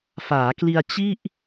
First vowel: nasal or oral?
oral